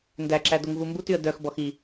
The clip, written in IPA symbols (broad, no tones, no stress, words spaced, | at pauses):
ndæǁæ doŋvumbutyə̯ dœxbɔx i